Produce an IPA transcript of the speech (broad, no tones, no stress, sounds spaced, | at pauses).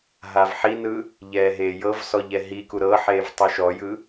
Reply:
ɦ a v ħ i n ɯ | ʎ ɛː ɦ eː j ɤ v s ɔ ʎ ɛ ɦ i k u ɾ ɤ ħ eː v tˤ u ʃ ɔ j ɯ